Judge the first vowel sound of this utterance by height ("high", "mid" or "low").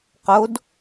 mid